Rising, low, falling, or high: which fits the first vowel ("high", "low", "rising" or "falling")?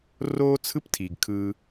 high